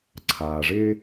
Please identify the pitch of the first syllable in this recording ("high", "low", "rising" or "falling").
low